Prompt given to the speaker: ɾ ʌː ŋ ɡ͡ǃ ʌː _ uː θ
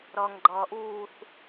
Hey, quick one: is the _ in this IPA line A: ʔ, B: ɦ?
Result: A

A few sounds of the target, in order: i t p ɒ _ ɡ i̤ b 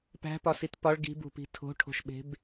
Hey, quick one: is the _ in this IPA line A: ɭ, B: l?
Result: A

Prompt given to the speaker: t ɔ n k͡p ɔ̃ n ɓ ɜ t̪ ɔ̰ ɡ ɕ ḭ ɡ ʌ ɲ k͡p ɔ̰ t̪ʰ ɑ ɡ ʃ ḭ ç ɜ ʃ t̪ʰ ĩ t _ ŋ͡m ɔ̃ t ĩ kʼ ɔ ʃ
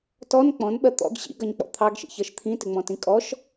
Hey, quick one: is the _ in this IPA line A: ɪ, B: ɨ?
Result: A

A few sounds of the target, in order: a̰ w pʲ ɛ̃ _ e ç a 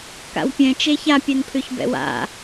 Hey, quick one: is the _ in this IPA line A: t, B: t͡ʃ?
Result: B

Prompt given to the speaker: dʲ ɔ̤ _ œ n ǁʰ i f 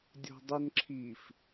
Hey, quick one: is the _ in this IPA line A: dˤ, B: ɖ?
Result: A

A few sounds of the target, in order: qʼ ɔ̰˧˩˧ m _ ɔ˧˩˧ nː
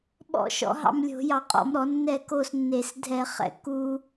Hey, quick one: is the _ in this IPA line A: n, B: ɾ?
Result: B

